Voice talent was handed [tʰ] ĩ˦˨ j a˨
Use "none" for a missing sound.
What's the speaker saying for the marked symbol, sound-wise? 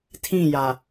tʰ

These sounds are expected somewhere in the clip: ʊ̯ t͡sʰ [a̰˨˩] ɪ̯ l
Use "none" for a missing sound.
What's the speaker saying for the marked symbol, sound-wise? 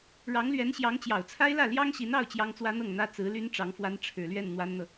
a˥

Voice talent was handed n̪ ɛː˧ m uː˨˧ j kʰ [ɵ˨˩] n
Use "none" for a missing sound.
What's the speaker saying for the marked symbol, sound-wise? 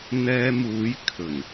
ɵ˨˩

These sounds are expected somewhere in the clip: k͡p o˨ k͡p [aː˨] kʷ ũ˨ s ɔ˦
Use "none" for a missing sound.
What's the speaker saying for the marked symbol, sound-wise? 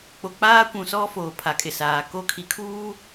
aː˦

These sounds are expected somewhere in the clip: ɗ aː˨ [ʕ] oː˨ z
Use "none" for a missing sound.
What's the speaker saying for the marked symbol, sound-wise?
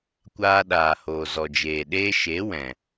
h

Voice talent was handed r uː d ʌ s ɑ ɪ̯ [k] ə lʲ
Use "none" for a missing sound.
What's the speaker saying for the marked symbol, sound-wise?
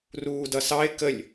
k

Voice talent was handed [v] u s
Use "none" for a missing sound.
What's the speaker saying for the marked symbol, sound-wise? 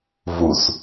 v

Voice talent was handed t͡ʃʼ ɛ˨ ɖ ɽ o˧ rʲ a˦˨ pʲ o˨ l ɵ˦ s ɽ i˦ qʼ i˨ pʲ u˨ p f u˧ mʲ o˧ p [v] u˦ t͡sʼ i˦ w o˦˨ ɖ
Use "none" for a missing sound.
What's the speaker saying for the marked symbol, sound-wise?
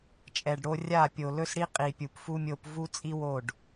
v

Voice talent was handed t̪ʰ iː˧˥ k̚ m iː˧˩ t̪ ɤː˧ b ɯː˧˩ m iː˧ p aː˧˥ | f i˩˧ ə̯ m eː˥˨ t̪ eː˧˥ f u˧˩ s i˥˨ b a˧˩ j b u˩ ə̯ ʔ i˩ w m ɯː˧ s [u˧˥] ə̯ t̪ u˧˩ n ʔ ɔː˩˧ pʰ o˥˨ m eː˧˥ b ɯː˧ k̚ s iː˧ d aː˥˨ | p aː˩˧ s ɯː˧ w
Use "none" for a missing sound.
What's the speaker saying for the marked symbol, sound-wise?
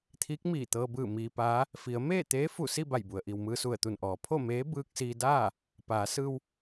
u˧˩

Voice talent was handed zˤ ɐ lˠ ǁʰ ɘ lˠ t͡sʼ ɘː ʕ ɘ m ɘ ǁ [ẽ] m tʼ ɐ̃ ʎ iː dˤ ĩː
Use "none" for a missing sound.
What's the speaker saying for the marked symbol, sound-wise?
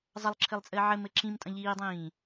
ĩ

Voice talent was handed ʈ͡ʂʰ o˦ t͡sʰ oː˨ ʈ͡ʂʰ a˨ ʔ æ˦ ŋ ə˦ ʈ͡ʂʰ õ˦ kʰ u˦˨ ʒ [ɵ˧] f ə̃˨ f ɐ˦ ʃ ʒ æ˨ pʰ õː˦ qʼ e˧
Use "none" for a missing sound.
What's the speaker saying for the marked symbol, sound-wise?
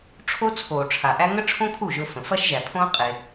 ɵ˧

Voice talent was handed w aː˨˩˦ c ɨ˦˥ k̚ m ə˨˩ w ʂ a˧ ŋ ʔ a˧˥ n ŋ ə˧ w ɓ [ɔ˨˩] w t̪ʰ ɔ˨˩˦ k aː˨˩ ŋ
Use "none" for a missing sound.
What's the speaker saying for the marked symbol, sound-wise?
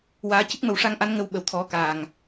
ə˨˩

